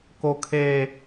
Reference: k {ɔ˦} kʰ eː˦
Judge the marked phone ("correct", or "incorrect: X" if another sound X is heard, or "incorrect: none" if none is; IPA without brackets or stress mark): incorrect: o˦